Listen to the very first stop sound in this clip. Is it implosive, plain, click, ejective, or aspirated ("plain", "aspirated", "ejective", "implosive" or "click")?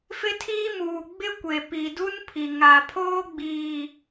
aspirated